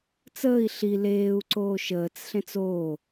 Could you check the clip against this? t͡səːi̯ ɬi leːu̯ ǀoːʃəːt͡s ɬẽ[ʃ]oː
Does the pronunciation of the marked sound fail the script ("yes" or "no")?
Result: yes